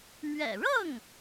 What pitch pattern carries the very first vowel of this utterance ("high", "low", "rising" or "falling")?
low